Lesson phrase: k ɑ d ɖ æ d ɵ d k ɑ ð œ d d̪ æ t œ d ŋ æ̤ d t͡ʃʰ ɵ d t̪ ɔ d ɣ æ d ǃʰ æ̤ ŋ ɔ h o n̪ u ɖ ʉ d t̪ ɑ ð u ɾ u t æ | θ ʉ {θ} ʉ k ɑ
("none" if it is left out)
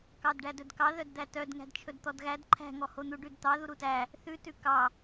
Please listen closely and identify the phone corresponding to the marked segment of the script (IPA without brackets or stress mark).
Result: t